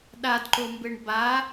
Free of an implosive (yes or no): no